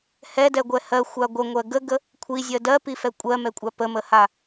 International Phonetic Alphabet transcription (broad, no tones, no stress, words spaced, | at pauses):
hɛdɛɡʷɛ hɜxʷa ɡʷəŋʷɜ ɡəɡə | kʷʰizʲɜ dɜpifɛ kʷʼɜmɛkʷʼa pəməha